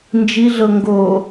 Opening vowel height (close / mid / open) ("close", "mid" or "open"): close